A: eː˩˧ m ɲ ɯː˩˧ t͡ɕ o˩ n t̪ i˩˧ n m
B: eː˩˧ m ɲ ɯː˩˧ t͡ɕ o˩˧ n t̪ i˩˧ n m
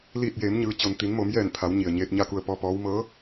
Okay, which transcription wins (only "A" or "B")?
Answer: A